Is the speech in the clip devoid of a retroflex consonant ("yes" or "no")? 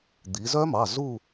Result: yes